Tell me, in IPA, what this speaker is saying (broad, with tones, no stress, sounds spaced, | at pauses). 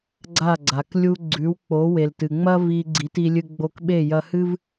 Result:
ɡ͡ǀ a˥˩ ɡ͡ǀ a˩ k lʲ u˧ ɡ͡ǀ ʉ˩˥ w k͡p o˩˥ w e˩ l t ɨ˩ ŋ͡m ɐ˥ v i˧ ɡ͡ǀ i˩˥ t i˧ lʲ ɨ˧ ɡ͡b o˧ k ɓ e˥˩ j ɐ˧ h ɨ˥ v